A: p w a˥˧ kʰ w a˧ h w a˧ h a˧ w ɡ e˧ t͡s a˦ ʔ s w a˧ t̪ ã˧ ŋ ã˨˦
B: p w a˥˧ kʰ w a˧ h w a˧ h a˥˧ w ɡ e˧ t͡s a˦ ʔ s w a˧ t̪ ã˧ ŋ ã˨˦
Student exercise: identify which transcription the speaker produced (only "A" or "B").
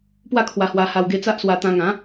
A